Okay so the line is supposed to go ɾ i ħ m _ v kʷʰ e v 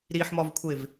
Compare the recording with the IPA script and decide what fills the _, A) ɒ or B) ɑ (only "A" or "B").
A